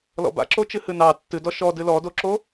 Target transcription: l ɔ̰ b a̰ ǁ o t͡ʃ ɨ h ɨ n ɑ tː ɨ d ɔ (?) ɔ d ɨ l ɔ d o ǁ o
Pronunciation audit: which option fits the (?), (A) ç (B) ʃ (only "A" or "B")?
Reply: B